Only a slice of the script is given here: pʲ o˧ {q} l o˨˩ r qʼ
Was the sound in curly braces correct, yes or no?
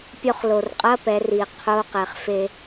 no